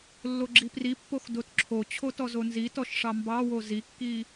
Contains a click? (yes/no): yes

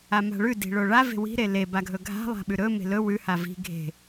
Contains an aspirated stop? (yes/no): no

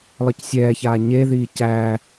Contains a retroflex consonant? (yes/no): no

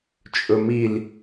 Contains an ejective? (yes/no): yes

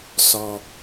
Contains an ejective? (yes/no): no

